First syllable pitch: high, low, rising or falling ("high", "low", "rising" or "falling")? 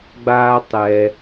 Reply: high